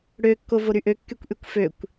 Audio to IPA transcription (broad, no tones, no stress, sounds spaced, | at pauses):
ɽ ø kː o v o ɾ y ʔ ø kː y kʷ ʔ y kʷ f ø kʷ